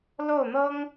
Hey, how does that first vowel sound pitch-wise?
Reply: falling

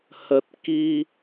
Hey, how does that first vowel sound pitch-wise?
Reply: low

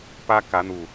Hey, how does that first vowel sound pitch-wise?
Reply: high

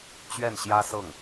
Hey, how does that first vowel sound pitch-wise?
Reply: falling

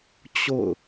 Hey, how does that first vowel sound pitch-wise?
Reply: falling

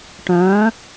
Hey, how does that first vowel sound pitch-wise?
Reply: rising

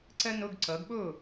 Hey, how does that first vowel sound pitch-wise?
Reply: high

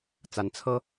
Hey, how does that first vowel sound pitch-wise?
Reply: rising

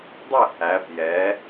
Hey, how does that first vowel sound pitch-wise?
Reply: falling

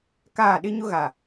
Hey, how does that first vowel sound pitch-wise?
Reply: falling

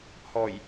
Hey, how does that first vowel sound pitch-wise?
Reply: low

